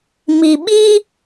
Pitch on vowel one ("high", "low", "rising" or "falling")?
low